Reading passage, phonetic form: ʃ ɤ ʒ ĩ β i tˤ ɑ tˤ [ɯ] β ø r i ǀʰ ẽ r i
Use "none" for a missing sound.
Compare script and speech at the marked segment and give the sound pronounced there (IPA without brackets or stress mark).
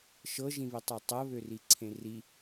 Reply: ɤ